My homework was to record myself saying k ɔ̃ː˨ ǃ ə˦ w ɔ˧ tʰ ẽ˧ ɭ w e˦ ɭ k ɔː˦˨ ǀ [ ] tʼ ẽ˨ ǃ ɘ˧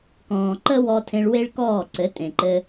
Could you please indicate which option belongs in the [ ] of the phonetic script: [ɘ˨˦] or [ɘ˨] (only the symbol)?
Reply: ɘ˨˦